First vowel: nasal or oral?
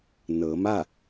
oral